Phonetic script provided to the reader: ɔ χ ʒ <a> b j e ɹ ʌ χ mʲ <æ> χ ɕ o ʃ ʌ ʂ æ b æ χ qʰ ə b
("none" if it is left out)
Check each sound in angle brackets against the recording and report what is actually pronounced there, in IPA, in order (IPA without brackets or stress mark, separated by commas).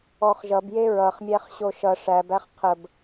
ʌ, æ